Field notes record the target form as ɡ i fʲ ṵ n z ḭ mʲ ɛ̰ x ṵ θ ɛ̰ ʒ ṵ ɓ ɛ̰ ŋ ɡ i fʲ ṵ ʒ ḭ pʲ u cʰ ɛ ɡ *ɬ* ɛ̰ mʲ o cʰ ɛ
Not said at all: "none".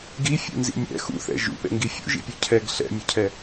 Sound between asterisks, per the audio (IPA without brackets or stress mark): ɬ